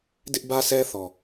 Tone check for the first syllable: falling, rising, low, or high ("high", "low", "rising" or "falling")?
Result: high